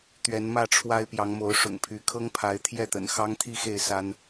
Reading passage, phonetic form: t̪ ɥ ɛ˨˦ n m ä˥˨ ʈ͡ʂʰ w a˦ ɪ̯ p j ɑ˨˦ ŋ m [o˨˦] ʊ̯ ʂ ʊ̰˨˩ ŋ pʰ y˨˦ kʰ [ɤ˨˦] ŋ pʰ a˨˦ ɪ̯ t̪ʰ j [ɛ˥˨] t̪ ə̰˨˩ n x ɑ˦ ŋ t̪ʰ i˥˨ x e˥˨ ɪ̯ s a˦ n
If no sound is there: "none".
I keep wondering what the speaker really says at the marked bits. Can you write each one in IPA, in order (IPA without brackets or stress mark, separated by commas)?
o˨˦, ɤ˦, ɛ˥˨